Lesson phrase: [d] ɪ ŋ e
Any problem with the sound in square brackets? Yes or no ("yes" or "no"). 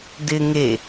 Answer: no